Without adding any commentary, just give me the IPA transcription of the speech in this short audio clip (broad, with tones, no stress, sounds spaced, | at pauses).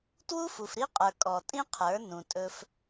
t w u˦ f u˨ f ɾ i˦ qʼ ə˞˨ kʼ ɔ˨ tʼ ĩ˦ qʰ ə˞˨˦ n ũ˨ tʼ ɵ˦ f